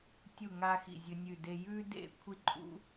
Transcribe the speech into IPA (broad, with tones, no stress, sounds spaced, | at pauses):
tʲ u˥˧ ŋ a˥ x ḭ˥˧ zʲ ɵ˥ nʲ ʉ˥˧ d e˥ j ʉ˥ d ḛ˥˧ kʷʰ i˥ ǃʼ ṵ˥